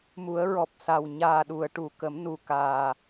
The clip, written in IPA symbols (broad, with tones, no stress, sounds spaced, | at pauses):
m u˨˩˦ ə̯ ɹ ɔ˨˩ p̚ s a˨˩ w ɲ aː˨˩ ɗ u˨˩˨ ə̯ ʈ u˨˩˨ k ə˨˩˦ m n u˨˩ k aː˨˩